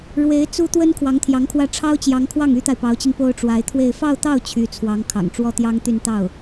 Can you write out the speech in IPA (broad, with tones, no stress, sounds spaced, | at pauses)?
ɻ w e˧˥ ɪ̯ t͡s u˥ t̪ w ə˥ n kʰ w ɑ˧˥ ŋ t̪ʰ j ɑ˧˥ ŋ kʰ w ä˥˩ ʈ͡ʂʰ ɑ˥ ʊ̯ t͡ɕ j ɑ˧˥ ŋ kʰ w ɑ˥˩ ŋ y˥ t̪ a˨ ɪ̯ p ɑ˧˥ ʊ̯ t͡ɕ i˧ ŋ p o˥ ʊ̯ ʈ͡ʂ w a˧˥ ɪ̯ t̪ʰ w e˥˧ ɪ̯ f ɑ˥˧ ʊ̯ t̪ ɑ˥˩ ʊ̯ t͡ɕʰ y˧˥ t͡sʰ w ɑ˧˥ ŋ kʰ ɑ̰˨˩ ŋ ʈ͡ʂ w ɔ˥˩ t̪ j ɑ˥ ŋ t̪ y˥˧ n t̪ ɑ˥˩ ʊ̯